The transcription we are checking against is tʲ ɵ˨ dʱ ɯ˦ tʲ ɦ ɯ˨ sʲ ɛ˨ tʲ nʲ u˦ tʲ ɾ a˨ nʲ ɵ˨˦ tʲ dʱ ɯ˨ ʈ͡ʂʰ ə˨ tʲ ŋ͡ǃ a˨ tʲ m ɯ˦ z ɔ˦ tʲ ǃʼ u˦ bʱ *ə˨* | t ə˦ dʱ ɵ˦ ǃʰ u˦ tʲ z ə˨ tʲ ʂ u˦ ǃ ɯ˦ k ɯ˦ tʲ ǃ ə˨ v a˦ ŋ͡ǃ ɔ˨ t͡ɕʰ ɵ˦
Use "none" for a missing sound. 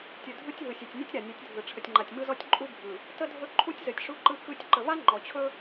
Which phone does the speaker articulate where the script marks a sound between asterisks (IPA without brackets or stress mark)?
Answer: ɯ˨